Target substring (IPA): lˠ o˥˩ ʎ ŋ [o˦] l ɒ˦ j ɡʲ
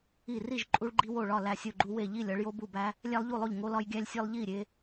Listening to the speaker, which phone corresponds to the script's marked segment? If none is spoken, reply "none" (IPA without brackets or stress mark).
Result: o˦